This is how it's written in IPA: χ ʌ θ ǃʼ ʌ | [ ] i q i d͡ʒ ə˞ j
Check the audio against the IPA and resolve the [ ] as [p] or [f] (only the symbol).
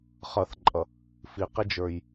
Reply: f